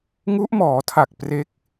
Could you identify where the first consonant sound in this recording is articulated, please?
velar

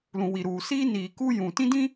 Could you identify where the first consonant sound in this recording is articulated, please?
alveolar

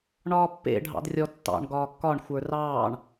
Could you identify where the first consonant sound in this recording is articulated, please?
retroflex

